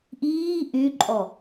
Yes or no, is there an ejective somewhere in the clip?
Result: yes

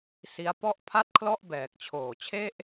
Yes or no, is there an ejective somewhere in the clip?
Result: no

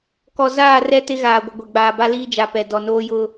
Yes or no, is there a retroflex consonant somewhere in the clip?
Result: no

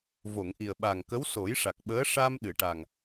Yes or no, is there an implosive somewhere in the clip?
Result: yes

